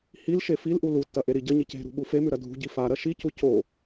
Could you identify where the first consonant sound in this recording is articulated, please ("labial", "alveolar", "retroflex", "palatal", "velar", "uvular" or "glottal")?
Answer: glottal